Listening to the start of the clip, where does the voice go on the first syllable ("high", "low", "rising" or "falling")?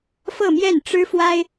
falling